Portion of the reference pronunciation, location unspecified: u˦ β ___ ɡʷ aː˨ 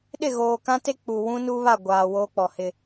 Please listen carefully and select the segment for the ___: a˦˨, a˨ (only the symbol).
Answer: a˦˨